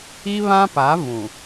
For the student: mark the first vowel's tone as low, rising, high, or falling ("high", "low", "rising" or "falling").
high